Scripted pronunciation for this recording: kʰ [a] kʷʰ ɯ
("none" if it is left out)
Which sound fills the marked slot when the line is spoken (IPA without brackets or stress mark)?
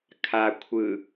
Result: a